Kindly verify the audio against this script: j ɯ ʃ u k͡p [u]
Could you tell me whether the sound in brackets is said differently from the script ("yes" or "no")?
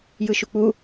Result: no